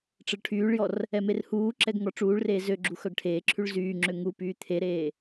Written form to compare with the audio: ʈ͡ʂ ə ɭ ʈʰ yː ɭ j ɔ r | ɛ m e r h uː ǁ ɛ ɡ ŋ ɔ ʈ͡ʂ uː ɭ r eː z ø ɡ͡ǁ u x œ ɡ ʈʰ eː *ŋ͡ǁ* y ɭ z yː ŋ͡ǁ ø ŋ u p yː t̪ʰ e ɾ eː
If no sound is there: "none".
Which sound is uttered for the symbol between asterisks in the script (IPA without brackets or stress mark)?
ǁʰ